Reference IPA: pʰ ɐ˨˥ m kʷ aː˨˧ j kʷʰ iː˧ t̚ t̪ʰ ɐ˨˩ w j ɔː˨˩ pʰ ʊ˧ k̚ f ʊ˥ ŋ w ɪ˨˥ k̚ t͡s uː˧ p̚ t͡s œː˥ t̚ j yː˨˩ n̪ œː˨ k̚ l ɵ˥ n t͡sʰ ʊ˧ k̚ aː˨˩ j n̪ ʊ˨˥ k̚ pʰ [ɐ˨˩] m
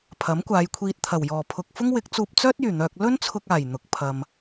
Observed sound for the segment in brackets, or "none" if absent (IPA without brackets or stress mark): ɐ˨